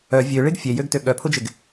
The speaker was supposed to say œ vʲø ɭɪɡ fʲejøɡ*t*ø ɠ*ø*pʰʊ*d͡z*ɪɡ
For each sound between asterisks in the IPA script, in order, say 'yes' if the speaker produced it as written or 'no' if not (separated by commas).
yes, no, no